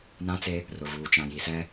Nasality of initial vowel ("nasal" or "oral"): nasal